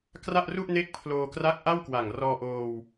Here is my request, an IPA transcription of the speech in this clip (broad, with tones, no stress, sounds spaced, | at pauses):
k r a˥˩ ʔ r u˥˩ ʔ n e˦˥ k̚ pʰ l oː˧ k r a˦˥ k̚ ʔ a˥˩ w k w a˨˩ ŋ r ɔː˧ ʔ oː˧ w